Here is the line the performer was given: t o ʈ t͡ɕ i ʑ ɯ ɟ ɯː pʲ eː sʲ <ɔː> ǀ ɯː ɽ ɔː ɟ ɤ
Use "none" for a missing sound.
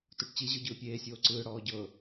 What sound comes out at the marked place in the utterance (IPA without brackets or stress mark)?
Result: oː